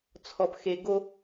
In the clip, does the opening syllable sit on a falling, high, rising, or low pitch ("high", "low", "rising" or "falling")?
low